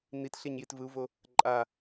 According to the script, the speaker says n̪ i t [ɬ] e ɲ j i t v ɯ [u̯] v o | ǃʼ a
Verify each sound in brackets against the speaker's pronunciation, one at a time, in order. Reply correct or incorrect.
correct, correct

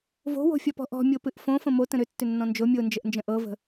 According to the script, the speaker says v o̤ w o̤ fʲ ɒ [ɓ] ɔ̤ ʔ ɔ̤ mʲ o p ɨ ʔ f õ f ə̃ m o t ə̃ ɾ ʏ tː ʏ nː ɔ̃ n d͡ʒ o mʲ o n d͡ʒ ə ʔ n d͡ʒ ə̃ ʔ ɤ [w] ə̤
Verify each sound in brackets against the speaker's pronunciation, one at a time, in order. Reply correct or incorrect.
incorrect, incorrect

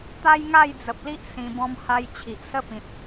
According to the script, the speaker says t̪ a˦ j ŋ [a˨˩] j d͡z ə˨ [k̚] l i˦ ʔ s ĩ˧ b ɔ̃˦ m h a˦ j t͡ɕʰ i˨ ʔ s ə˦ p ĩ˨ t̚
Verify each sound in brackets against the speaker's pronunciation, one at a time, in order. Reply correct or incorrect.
incorrect, incorrect

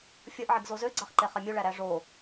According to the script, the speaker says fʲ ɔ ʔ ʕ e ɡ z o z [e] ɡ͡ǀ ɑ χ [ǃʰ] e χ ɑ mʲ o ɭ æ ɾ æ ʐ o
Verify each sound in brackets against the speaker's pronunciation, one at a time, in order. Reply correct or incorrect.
incorrect, incorrect

